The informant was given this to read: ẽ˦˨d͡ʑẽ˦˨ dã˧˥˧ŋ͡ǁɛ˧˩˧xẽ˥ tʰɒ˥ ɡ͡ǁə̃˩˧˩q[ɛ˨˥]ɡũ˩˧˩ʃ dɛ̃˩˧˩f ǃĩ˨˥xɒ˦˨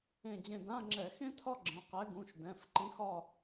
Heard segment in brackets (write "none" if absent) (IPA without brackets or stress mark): ɛ˨˥